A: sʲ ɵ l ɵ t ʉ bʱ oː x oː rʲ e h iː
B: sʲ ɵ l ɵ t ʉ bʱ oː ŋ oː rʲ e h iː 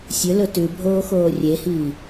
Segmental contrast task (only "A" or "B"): A